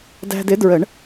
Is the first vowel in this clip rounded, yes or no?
no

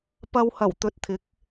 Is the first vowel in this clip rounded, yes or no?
no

